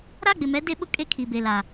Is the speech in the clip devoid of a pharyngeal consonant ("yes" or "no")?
yes